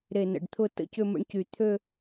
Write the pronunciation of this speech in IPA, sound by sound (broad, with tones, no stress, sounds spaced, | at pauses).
ɾ e˧˩ n ə̰˧˩ ɖ t̪ʰ ʊ˥˧ t ə̰˥˧ c ʏ˥˧ m ə̰˥˧ ɳ c y˧˩ t̪ʰ ø˥˧